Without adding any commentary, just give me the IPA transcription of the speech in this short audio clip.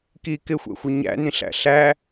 k i k ɪ xʷ ɛ̰ xʷ ə ɲ æ̰ n ĩ ɬ æ̰ ɬ æ

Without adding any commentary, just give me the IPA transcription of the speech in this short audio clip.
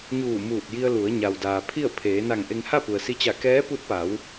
ɲ uː˧˩ m uː˧˩ t̚ j i˧ ə̯ l u˩˧ ə̯ ɲ a˩ w d aː˩ pʰ i˥˨ ə̯ pʰ eː˩˧ n a˧˩ ŋ ʔ e˧ ŋ h a˥˨ p u˩ ə̯ s i˧˥ t͡ɕ a˧˩ k ɛː˧˥ p u˧˥ t̚ p a˩˧ w

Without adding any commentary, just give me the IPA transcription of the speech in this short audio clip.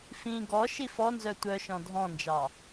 f ĩ ɡ ɔ ʃ i f ɔ n z œ tʷ œ ʃ ɔ̃ dʱ ɔ̃ n d͡ʒ ɑ

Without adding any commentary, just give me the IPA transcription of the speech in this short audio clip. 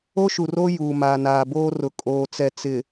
o˦ ʃ u˨ r oː˦ j uː˨ m aː˨ n aː˨ b oː˦ r ʊ˨ kʼ oː˨ t͡s ɛ˨ t͡s ɪ˨

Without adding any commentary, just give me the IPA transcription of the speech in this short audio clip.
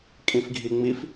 kʼ ĩ f ɡʱ i ŋ͡m i f

